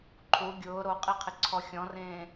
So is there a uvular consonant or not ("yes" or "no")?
yes